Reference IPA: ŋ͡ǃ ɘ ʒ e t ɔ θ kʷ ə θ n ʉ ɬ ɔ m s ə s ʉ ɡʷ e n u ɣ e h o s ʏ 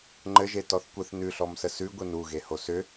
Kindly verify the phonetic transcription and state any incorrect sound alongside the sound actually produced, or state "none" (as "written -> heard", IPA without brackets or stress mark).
none